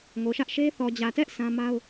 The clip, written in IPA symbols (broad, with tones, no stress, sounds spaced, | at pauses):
ŋ o˨ ʃ ä˦ ʔ ʃ e˦ θ ɔ˨ d͡ʑ ä˨ t ɛ˦ ʔ sʰ ã˦ m a˦ ʊ̯